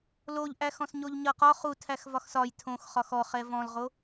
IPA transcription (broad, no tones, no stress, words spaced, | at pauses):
loʎʔæxɔ̃s ɲoʎɲʌqɒ χu tʰæxvɒxsɒj tʰõxχɒx ɔχɛ vɔ̃lʁo